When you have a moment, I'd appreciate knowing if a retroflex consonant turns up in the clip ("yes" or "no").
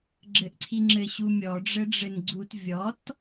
yes